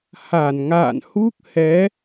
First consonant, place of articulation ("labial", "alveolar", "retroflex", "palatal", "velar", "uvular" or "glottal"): glottal